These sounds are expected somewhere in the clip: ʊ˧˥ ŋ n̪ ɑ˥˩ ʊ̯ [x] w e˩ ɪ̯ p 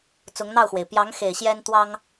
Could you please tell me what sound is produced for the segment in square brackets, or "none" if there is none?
x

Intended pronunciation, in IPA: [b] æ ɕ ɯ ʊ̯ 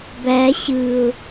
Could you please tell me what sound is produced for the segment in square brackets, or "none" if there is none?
b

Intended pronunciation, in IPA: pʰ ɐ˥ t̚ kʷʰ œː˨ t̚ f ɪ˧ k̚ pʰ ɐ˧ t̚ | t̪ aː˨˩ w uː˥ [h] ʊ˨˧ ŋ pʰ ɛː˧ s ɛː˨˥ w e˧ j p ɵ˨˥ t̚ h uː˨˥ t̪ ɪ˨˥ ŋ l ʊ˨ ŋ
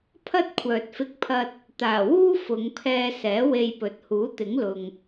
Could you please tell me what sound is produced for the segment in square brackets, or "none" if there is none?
f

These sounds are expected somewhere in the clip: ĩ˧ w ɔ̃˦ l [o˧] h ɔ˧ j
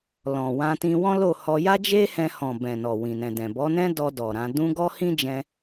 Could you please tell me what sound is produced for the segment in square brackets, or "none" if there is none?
o˦˨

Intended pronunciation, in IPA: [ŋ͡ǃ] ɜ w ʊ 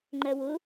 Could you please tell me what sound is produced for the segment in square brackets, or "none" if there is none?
ŋ͡ǃ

